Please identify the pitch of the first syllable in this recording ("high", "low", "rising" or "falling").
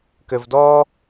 low